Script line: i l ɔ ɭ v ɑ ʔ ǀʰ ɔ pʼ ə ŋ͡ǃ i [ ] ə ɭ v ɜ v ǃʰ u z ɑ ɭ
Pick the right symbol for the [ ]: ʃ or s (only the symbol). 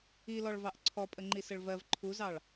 s